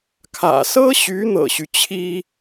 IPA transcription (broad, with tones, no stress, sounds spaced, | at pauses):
kʰ ä̰˨˩ s ɤ˥ ɕ y˧˥ n̪ ɤ̰˨˩ ɕ y˦ t͡ɕʰ i˥